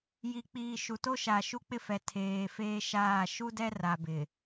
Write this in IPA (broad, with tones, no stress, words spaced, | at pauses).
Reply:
ji˨k͡piː˨ ʃu˨to˦ ʃa˨ʃu˦k͡pɪ˦fɛ˨ tʰeː˨ feː˦ʃaː˦˨ ʃu˦dɛ˦ra˨ bɪ˨